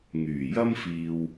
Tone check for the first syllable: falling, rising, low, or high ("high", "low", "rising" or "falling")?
low